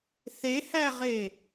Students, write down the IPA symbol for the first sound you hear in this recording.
θ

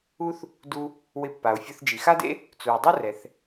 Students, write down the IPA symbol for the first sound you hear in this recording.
u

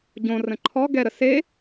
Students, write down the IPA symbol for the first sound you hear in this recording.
ɟ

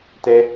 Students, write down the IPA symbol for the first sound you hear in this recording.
t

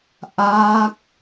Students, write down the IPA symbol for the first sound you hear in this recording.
ʔ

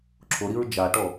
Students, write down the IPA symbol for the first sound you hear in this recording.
ǁʰ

